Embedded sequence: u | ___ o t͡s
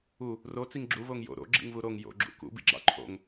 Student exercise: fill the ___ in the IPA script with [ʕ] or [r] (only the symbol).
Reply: r